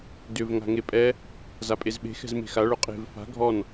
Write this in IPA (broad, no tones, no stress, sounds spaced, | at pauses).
d ʏ v ŋ a̤ ŋ e pʼ ɛ | z a pʼ e z ɓ e̤ x ɛ̤ z m e̤ x a ɭ ʊ qʼ e̤ v f a̤ ɡʱ ɔ n